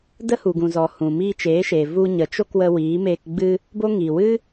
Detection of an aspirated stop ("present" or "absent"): absent